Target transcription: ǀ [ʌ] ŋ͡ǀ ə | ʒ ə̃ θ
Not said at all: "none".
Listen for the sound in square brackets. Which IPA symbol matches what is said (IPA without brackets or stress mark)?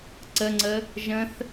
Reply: ə